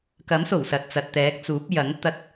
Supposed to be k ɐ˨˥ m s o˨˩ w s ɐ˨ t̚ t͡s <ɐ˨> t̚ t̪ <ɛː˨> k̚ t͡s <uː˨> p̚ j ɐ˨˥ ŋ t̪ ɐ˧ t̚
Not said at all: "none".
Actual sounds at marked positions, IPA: ɐ˨, ɛː˨˥, uː˨˥

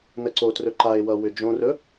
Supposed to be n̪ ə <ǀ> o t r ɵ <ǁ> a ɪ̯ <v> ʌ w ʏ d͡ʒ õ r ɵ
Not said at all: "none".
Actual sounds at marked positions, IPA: ǀ, ǃ, w

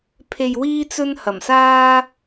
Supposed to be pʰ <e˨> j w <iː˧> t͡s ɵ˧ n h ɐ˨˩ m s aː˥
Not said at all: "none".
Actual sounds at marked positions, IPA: e˨, iː˧

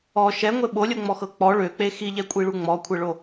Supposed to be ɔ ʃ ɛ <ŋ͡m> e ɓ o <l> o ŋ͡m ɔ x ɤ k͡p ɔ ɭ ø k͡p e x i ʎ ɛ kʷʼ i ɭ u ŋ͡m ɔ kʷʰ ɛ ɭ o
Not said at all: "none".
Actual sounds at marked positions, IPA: ŋʷ, lʲ

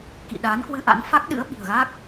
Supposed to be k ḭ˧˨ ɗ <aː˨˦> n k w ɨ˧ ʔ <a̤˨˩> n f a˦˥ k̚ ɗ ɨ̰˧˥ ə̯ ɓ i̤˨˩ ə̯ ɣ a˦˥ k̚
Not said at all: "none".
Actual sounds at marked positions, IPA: aː˨˦, a̰˧˥

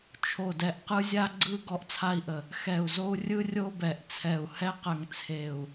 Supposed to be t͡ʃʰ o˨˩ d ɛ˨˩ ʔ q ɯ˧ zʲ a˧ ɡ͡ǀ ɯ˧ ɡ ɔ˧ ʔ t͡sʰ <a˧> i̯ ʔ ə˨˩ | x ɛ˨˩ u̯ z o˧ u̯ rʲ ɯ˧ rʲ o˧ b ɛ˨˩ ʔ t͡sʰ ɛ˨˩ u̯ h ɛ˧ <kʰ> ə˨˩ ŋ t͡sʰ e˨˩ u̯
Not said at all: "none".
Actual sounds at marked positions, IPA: a˧, q

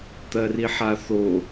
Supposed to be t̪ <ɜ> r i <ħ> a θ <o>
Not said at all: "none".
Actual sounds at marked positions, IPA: ɜ, ħ, o

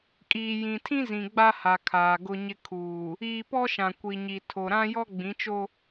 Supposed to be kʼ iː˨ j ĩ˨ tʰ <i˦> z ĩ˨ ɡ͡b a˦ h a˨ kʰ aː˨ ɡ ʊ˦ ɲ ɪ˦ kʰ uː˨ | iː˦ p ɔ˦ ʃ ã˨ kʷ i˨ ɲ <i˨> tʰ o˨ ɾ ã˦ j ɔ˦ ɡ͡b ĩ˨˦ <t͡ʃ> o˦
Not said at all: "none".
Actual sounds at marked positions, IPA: ĩ˦, i˨, t͡ʃ

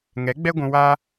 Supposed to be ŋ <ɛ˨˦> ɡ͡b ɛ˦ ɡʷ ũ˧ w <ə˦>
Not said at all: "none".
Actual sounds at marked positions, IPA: ɛ˨˦, a˦

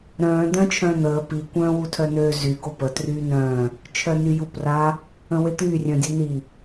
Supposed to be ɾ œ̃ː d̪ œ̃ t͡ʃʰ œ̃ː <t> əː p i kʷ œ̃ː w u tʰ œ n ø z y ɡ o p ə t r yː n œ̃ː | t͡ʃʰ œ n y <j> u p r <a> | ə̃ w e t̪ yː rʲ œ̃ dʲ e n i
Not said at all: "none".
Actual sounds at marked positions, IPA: n̪, j, a

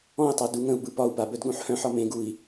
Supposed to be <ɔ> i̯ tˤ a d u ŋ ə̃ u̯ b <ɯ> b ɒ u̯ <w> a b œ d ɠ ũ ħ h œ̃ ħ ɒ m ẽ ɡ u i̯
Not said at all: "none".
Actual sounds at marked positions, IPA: ɔ̃, ɯ, b

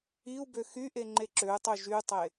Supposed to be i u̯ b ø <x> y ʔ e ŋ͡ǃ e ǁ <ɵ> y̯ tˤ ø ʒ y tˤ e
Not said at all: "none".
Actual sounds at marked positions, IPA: x, ø

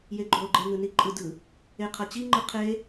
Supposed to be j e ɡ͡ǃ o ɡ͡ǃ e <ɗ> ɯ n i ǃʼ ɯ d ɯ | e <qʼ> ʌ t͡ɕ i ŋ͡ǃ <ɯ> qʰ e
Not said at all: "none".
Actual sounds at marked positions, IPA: n̪, qʰ, ɯ

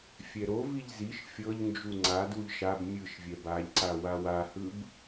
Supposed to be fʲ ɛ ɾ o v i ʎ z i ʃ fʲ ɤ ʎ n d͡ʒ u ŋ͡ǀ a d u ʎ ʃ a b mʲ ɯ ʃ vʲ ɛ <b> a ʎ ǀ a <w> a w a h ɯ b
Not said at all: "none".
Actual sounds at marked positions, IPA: b, w

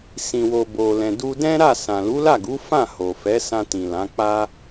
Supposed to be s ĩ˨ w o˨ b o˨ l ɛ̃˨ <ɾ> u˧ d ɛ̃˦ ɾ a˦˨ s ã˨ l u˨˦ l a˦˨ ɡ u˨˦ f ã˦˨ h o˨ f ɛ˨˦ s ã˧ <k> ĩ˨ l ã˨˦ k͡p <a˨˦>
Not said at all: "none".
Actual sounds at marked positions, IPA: d, t, a˦

